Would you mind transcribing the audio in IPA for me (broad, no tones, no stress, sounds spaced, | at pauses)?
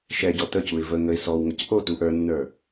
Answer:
ʃ ɛ ɟ ɔ t ə c u ɪ̯ v ə ŋ ə ɪ̯ s ɔ w ŋ ə c ʔ o t u ʔ ə˞ nː ə˞